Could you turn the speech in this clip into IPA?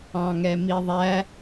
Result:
ɑ̃ ŋ ɛ m i ðˤ æ

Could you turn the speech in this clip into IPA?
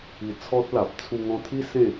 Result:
i˧ t͡sʰ ɔ˦ t̚ l a˨ p̚ t͡sʰ u˧ ŋ ɔ̃˧ t̪ʰ i˦ s ẽ˥˧

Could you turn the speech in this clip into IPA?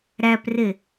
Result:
ɾ æ p r e

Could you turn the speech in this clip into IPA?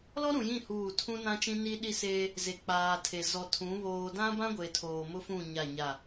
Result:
l ɔ˦ ɾ ũ˨ j ĩ˦˨ h uː˦˨ tʰ ũ˦ n ã˦ t͡ʃ ĩ˦ n i˦ ɗ i˦ s eː˦ | z e˨ k͡p aː˨ tʰ e˨ z ɔ˨ tʰ ũ˨˦ β oː˨ d ã˦ b ã˦ ɡʷ e˨ tʰ oː˨ m ʊ˦ f ũ˦˨ ɲ a˦˨ ɲ a˦˨

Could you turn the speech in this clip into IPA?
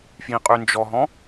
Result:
f j ĩ qʼ y n d͡ʒ ɔ ɦ ɔ̃

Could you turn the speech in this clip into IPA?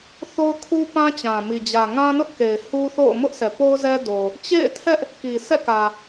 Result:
θ o˦ ʊ̯ kʰ u˦ p ã˦ t͡ɕ ã˨ m i˨ d͡ʑ ä˨ ŋ ã˦ n ʊ˦ ʔ k e˨ ɪ̯ h u˦ θ o̰˦˨ ʊ̯ m ʊ˦ ʔ s ɛ˨ p o˦ ʊ̯ z ɛ˦ d o˨ | t͡ɕ ḛ˦˨ ɪ̯ tʰ ɛ˦ ʔ | k i˨ s ɛ̰˦˨ k ä˨

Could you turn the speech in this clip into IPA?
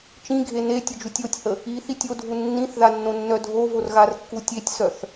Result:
t͡ʃ ĩ ɡʱ e n e tʲ ə d͡ʒ u tʲ o tʲ h ə | i θ i tʲ o dʱ u nː ĩ θ ð a nː õ nː œ dʱ o v o r ɣ a r kː u tʲ e tʲ s œ θ

